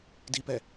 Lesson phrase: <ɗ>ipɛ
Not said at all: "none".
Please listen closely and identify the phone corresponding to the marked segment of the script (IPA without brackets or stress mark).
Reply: d